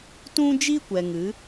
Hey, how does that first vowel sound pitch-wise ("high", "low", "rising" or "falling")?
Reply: high